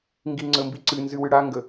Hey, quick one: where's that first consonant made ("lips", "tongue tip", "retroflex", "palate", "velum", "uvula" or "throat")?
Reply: velum